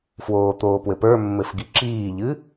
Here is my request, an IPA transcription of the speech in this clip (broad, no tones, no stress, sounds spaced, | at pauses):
f w oː t̪ oː p w ɘ p ə˞ mː ɘ f ɡ i ǁ iː ʎ ɨ